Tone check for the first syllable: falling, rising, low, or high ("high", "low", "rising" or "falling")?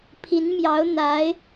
rising